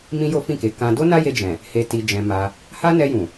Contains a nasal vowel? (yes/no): yes